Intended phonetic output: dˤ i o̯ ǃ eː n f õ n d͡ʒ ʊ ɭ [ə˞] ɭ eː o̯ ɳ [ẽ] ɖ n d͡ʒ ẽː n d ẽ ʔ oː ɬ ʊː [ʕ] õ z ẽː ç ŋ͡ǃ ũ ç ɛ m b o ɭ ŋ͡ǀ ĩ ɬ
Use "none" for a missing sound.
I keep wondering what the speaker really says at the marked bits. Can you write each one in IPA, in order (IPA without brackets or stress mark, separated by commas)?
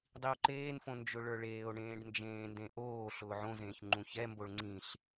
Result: ə˞, ẽː, ʕ